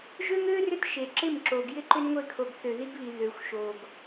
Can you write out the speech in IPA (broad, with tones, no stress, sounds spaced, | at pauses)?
ʒ ø˦ ŋ ø˦ r ʏ˦ t ʃ e˨ ǁ ɪ˦˨ m ǁ o˨ ɡ j ɪ˦ ǃ ʏ˦ n ŋʷ e˧ kʰ o˨ ɡ θ ø˨ ð i˧ ɡ β i˨ ð ø˨ xʷ ʃ o˨ ɡ